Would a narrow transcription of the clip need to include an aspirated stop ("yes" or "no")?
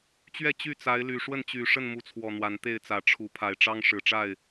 yes